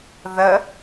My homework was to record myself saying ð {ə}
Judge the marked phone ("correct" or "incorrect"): correct